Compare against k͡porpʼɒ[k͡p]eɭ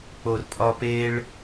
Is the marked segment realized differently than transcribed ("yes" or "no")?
yes